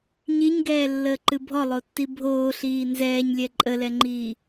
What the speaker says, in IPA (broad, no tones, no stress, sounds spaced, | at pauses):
ɲ i ɲ ɡ ɛː lː əː ǃ ɨ bʱ ɔ lˠ o tː i bʱ oː ɬ iː n z ɛː ɲ lʲ ɛ ǃʼ ə l ɛ ŋ͡ǃ iː